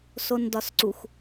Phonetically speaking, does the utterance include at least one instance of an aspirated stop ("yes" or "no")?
no